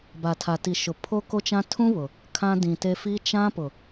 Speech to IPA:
ba˨tʰa˨ti˨ ʃʊ˨pʰo˦ko˦t͡ʃã˦ tʰũ˦ βʊ˨ | kʰã˦dĩ˨te˦ fi˦ t͡ʃã˦ pʊ˨

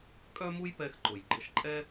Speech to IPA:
kʼœ˥mu˥jpɛ˧x ǃʊ˩jɡ͡ǃɘ˧ʃǃʼɛ˥

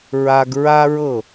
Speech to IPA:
ɹa˧ɡ ɹa˥ɹɤ˥˩

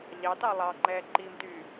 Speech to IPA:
ʎɑtɑ lˠɑŋ͡ǃɛː ǃimtyː

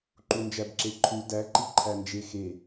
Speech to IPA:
ǃund͡ʒæbǁeǃʰu dæǃi ǃʰænd͡ʒexe

